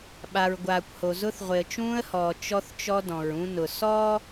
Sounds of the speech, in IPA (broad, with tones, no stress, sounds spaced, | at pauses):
ɓ a˨ ɹ ɡʷ aː˨ kʷ h o˨ z ʊ˦ θ ʁʷ ɪ˨ ə̯ t͡ʃ ũː˦ ə̯ h ɔː˨ t͡ʃ ɔ˦ θ t͡ʃ ɔ˦ d ɔ̃˨ ɹ ũ˦ n ʊ˨ s ɔː˦